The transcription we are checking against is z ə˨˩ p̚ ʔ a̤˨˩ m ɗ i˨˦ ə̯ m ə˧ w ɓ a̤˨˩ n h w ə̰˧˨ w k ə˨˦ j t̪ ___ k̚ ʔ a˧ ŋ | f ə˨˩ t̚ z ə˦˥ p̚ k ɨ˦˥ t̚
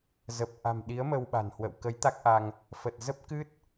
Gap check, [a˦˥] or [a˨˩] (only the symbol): a˦˥